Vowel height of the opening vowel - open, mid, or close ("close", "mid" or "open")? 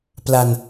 open